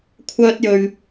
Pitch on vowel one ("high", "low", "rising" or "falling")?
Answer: high